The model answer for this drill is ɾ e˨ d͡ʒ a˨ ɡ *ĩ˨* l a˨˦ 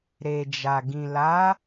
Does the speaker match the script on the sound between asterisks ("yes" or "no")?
yes